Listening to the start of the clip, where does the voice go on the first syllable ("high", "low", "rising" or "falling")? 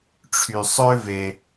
low